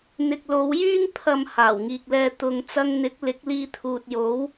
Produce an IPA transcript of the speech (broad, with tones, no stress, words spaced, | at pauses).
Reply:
n̪ɪ˨k̚lo˨˧wjyː˥ŋ pʰɐ˨m haː˨˩wŋiː˨k̚lɛː˧ t̪ʊ˨ŋ t͡sɐ˧ŋn̪ɪ˨˥k̚ lɪ˨˥k̚liː˧t̪ʰuː˨t̚ jo˨˥w